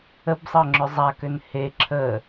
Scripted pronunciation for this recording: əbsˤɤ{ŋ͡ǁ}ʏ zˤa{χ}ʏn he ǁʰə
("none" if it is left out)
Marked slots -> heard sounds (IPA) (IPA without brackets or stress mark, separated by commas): ŋ͡ǁ, k